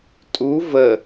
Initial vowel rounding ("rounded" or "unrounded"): rounded